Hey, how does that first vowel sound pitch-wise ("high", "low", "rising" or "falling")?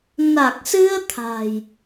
low